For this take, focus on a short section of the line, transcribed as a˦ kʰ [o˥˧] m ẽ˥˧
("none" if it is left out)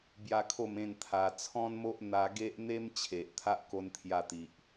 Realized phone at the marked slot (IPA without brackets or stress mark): o˥˧